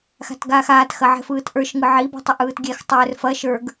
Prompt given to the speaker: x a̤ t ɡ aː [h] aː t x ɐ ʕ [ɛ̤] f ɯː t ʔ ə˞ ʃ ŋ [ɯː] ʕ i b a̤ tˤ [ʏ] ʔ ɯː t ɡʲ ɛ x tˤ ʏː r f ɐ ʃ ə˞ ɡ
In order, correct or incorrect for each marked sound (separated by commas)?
incorrect, correct, incorrect, correct